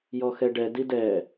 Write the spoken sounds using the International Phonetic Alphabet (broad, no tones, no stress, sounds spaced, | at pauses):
j ɔ x ɛ ɖ ɛ d i d ɛ